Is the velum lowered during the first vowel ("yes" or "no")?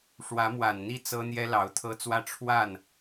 no